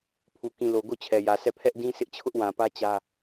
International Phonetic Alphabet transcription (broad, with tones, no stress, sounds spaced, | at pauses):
pʰ u˨ k ĩ˨ l o˨ ɡ o˦˨ t͡ɕʰ ɛ˨ j ä˨ sʰ ɛ˦˨ pʰ ɛ˦ ʔ d ĩ˦ s ɪ˦ ʔ t͡ɕʰ ʊ˦ ʔ w ã˨ p ä˦ t͡ɕ ä˦